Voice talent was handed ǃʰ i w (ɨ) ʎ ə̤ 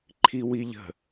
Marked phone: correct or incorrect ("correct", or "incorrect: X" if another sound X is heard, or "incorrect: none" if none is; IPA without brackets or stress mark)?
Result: incorrect: i